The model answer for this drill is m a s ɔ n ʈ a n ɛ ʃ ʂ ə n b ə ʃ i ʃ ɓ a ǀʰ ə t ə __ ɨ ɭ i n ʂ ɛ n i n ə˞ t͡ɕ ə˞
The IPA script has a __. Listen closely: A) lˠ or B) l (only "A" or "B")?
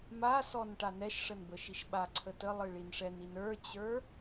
A